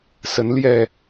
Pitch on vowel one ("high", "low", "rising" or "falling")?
rising